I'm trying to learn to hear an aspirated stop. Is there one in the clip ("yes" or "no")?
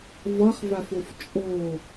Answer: no